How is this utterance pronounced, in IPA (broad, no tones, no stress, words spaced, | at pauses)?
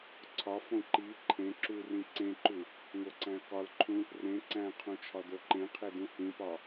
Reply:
ǀʰɒfõ ǃi ǃʰẽ ǁurĩ ǀẽǃu | ŋoǀæ̃ə̯kɒlǃʰũ | rẽ ǀæ̃qʰũ t͡ʃʰɒdoǃẽqʰe dũhĩpɒ